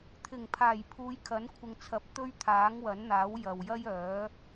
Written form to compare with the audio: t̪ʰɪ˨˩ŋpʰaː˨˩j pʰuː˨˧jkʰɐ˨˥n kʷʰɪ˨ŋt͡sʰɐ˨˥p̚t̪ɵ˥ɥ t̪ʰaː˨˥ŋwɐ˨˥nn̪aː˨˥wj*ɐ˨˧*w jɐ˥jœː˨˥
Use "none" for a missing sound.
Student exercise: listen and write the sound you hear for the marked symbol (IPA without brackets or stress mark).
ɐ˨